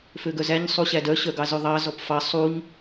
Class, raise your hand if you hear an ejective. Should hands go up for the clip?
no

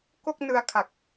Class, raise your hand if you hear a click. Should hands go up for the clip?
no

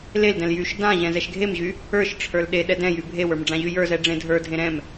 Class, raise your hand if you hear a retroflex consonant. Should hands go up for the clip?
yes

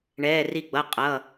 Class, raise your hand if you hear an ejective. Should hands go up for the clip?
yes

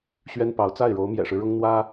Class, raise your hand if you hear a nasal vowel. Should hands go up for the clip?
no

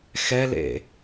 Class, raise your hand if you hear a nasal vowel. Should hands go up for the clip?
no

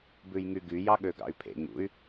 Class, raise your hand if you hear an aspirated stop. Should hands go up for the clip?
yes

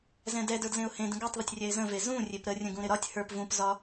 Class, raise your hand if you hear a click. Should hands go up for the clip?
no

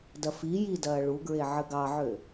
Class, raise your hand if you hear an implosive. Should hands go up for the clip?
no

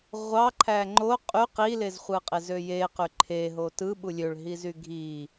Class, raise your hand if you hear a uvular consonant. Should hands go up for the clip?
yes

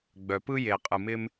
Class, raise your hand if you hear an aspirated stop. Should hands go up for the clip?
no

